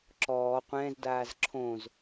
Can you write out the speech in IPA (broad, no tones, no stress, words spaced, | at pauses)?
ǁɔː qʷɛ̃ːzdaːz ǁʰõz